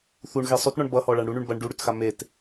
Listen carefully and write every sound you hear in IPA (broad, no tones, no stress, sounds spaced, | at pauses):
θ u ɳ ɣ e sˤ ʉ t ɳ ɔ ɳ b ʌ h ɔ ɭ a ɳ ɽ u ɳ ʉ ɳ b ɐ ɳ ɖ u ɽ ʉ t x a m e t